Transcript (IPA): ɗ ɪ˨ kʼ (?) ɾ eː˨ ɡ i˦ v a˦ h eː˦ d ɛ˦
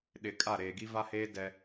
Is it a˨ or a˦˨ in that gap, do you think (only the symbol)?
a˦˨